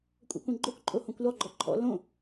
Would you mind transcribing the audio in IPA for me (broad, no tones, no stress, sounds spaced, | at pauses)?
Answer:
kʷʼ ɛ̰ kʷ ɛ̃ ɡ͡ǃ o k ǃʼ o h õ kʷ l ɔ ɡ͡ǃ ɔ ǃʰ ɔ̰ l õ